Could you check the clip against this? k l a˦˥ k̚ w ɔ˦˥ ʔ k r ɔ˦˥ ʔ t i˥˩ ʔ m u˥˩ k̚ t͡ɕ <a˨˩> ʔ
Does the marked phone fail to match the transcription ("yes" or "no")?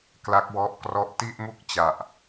no